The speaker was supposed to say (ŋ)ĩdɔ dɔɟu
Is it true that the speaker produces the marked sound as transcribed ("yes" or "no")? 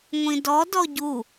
no